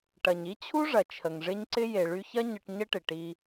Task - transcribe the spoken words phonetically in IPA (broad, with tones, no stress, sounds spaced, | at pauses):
ʈ ɐ˨ ɲ i˦ t͡ɕʰ u˦ ʐ ɐ˨ t͡ʃʰ ə˨ ŋ ʐ ɪ˦ ɲ ǀ ɪ˦ j e˨ ɭ y˧ ç ɐ˦ ɲ ə˧ ʈ ɲ ə˦ ʈ ɪ˨ ʈ i˧